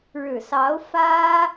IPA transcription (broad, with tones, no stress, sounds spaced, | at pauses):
ɻ ɻ̩˨˩ s ɑ˧˥ ʊ̯ f ä˥